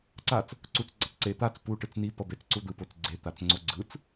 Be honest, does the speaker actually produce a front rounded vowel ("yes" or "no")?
no